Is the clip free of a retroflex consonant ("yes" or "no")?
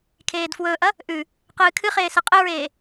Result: yes